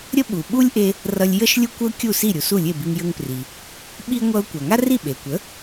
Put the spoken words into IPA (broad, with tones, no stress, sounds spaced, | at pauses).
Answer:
ɾʲ ə˥ ɓ u˩ ɓ u˥ lʲ ʔ e˧ | r ʌ˧ lʲ j ə˥ ʃ lʲ u˥ kʷ ə˥ ʊ̯ kʲ u˥˩ s i˥˩ ɾʲ u˩ s u˥˩ lʲ e˥˩ b i˧ ŋ j ə˧ ŋ p r i˩ | ɓ i˥ ŋʷ ʌ˧ ʊ̯ kʷ a˩ ŋ a˥ r i˥˩ ɓ e˩ kʷ ə˩˥